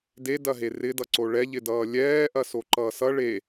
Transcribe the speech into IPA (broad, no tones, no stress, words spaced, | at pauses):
dedɐɦe rɪdʌǀo ɭɛʎɪdʌː lʲɛːʔɐso ǃʌːsʌ ɭe